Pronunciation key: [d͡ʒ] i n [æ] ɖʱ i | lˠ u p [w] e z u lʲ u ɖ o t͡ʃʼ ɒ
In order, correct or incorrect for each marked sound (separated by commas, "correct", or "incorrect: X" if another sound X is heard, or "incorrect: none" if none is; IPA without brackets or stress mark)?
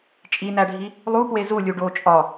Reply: incorrect: t͡ʃʼ, correct, correct